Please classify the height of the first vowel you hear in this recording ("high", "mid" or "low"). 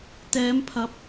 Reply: mid